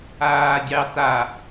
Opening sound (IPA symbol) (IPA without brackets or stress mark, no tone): aː